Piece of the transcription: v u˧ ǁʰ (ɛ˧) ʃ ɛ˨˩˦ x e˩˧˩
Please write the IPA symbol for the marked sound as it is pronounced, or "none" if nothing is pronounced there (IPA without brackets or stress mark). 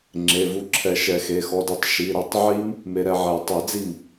ɛ˨˩˦